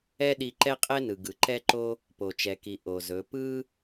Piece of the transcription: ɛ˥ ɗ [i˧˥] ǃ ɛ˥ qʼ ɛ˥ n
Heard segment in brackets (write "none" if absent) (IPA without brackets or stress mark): i˧